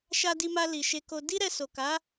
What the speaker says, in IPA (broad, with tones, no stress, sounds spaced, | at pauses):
ʃ a˧ d i˧ m a˧ l i˨ ʃ e˧ k o˧ d i˦ ɾ ɛ˧ s o˨ k a˨˦